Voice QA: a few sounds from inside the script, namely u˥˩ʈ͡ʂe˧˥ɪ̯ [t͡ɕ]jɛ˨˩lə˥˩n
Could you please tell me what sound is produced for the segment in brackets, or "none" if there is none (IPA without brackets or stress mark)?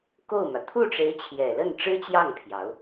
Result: t͡ɕʰ